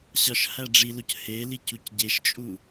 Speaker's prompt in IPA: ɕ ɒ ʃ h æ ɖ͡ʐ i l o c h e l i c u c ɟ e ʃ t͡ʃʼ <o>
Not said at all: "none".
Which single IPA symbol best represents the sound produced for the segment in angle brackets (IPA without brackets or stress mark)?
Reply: u